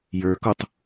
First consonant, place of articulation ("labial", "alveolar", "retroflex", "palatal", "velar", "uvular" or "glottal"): palatal